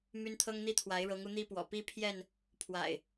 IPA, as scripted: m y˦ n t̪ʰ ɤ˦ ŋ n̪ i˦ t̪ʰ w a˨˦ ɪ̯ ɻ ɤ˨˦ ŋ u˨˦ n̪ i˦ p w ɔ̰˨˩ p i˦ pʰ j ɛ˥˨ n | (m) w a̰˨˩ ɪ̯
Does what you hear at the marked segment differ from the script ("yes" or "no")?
yes